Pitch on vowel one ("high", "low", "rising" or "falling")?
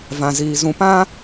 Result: low